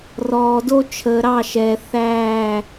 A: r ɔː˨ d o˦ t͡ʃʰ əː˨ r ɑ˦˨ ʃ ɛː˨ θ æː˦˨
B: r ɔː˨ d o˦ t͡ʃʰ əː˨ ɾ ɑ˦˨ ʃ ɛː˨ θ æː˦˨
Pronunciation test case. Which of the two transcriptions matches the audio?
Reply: B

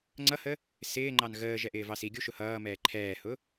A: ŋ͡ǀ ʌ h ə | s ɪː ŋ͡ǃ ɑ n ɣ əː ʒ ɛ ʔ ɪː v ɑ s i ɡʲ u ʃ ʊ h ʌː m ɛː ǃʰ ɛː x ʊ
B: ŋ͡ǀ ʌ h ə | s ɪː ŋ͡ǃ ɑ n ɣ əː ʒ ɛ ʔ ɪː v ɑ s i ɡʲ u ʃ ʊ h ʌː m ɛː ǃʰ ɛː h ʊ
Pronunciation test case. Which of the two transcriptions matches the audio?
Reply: B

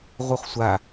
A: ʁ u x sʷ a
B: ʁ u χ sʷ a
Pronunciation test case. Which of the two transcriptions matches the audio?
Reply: B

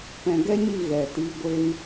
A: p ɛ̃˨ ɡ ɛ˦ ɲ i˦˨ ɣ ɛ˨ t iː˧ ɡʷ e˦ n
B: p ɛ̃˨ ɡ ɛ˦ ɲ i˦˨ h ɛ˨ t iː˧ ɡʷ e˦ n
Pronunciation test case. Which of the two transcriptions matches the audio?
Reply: A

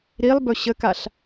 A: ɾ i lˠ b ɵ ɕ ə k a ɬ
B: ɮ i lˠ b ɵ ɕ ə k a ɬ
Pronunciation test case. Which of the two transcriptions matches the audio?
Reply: A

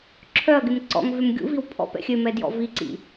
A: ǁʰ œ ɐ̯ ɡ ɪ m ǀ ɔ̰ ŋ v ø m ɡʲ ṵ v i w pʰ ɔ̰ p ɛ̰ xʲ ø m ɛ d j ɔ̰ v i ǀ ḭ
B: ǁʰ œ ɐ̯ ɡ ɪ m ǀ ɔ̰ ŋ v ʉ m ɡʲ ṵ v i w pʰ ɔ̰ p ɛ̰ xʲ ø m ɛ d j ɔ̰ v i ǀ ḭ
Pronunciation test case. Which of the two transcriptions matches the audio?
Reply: A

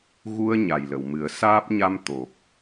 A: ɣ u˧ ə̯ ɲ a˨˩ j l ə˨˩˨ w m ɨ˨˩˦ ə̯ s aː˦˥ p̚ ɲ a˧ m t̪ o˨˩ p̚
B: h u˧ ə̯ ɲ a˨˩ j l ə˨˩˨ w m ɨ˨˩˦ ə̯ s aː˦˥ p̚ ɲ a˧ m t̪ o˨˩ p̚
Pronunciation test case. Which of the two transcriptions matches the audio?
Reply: A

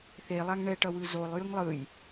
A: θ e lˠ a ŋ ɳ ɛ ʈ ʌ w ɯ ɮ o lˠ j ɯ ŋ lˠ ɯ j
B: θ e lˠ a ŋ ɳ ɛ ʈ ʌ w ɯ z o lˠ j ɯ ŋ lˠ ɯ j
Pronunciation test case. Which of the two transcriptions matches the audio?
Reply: B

